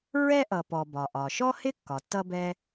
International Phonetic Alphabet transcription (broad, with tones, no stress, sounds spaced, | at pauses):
ɹ ɛ˥ ʔ ʌ˩ p ɔ˩ b ɒ˩ ʔ ɒ˩ ʃ ɔ˥ h ɪ˥ kː ɒ˩ tː ʌ˥ b ɛ˥